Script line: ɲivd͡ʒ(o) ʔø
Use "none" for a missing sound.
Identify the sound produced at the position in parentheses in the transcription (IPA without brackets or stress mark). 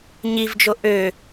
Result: o